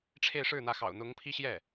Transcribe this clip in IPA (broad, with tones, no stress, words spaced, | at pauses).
ʈ͡ʂʰe˥˧ɪ̯ʂɻ̩˥˩n̪ä˧˥ xɑ̰˨˩ʊ̯n̪ʊ˧˥ŋpʰi˥ ɕjɛ˥˩